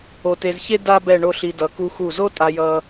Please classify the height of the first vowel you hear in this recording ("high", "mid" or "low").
mid